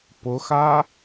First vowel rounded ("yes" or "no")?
yes